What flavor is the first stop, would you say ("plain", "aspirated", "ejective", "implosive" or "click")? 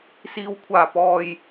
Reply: aspirated